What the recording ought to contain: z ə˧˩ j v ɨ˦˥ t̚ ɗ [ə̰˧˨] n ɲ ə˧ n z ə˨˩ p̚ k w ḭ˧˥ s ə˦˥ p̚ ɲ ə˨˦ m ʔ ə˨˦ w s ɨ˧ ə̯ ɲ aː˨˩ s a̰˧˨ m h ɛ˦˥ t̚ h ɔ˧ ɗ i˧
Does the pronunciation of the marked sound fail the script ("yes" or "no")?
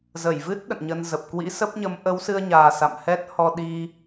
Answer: no